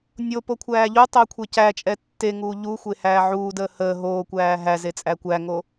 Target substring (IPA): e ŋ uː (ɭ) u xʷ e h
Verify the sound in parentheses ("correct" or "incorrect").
incorrect